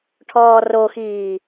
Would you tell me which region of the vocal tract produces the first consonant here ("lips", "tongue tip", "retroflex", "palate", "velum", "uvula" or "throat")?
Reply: retroflex